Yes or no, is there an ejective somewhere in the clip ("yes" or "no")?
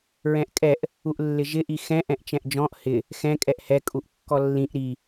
yes